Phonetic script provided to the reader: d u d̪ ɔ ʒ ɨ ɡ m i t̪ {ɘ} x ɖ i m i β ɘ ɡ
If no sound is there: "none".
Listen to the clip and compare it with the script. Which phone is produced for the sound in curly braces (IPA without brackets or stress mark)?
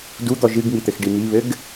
ɘ